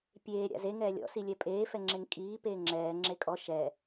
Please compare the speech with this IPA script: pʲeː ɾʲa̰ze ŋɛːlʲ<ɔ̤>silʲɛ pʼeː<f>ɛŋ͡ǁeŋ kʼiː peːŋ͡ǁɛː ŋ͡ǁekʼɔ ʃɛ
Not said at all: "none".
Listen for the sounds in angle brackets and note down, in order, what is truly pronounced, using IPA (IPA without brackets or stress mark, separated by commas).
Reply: ɔ̰, f